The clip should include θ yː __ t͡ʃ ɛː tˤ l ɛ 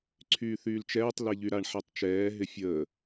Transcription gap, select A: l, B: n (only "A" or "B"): A